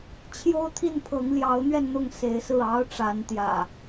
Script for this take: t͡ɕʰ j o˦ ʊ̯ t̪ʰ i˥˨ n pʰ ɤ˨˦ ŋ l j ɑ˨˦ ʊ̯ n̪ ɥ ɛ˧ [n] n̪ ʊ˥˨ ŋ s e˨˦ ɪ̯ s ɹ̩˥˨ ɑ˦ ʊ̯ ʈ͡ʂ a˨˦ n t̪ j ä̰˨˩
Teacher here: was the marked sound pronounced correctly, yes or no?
yes